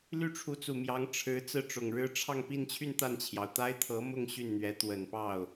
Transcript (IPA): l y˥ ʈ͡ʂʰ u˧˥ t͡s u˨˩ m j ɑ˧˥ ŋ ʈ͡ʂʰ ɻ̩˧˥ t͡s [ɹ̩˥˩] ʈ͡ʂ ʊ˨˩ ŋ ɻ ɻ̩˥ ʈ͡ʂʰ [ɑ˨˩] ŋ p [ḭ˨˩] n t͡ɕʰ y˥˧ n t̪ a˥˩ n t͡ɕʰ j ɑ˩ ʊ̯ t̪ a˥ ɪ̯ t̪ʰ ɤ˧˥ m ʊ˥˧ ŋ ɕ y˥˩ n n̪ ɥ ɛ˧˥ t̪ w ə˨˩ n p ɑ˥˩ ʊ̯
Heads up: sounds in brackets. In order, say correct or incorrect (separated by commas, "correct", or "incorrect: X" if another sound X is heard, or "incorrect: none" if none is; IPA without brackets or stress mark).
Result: correct, incorrect: ɑ˥˧, incorrect: i˥˧